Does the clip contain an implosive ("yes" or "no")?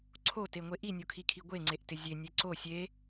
no